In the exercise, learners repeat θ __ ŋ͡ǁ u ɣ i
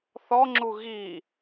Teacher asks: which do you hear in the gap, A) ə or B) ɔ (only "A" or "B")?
B